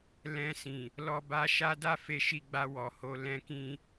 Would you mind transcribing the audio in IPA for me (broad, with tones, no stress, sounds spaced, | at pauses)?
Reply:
l ɛ̃˧ s ĩ˨ | l ɔ˧ b a˧ ʃ a˦ d a˦ f e˧ ʃ i˧ ɡ͡b a˧ w ɔ˨ h o˧ l ɛ̃˦ k ĩ˦